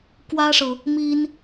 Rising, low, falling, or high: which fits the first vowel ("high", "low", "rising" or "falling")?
high